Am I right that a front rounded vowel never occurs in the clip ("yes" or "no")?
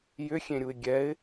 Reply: no